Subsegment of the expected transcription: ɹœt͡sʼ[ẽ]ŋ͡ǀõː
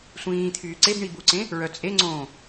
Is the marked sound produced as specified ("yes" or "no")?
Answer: no